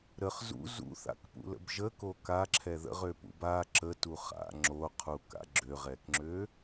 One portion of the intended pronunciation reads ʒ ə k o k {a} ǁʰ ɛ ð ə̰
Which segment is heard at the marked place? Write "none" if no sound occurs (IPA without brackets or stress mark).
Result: a